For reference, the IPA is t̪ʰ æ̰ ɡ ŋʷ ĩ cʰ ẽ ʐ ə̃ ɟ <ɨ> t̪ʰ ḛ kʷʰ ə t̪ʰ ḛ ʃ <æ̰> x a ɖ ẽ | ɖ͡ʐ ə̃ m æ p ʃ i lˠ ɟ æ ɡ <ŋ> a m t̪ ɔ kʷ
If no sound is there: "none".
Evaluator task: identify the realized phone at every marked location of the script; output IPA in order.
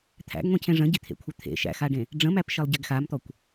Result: i, æ̰, x

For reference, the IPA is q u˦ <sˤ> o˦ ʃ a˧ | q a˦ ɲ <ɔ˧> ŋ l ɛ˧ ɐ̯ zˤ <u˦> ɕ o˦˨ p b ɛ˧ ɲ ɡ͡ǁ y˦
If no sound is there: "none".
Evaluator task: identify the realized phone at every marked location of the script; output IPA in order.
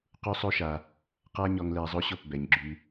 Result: sˤ, ɔ˧, o˦

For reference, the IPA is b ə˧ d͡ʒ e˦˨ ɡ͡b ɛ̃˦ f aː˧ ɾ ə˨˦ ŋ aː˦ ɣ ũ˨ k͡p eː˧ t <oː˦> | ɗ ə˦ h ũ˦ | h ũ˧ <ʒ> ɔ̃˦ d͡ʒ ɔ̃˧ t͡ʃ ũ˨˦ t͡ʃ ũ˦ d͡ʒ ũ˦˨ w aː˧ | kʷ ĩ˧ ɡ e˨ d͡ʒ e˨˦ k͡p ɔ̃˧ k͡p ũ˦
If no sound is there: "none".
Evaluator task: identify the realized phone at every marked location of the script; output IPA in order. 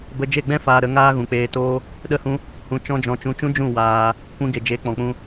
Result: oː˦, t͡ʃ

